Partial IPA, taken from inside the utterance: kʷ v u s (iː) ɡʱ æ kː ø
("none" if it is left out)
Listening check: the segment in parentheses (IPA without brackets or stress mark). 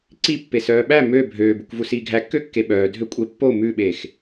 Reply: iː